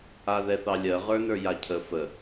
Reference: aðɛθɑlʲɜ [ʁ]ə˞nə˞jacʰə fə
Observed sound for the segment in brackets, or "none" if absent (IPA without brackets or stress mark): ʁ